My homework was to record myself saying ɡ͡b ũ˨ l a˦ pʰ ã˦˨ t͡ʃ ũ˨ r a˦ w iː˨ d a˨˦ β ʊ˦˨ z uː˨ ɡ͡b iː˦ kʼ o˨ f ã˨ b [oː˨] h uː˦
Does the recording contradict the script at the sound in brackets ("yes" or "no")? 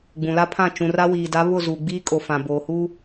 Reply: no